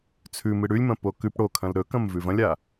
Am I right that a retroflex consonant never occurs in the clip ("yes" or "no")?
no